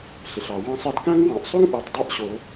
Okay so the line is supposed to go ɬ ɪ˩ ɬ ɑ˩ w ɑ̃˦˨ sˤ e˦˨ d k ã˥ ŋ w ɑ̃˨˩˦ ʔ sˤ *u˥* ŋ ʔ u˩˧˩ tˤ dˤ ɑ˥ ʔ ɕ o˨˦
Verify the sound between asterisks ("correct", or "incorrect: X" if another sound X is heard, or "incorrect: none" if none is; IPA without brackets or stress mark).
correct